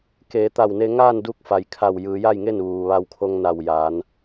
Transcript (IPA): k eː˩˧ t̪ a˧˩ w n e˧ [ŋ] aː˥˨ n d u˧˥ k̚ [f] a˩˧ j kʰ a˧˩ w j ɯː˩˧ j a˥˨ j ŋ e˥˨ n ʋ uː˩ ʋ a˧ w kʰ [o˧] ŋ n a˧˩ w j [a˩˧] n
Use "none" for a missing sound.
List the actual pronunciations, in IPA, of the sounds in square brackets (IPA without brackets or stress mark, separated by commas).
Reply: ŋ, f, o˧, aː˩˧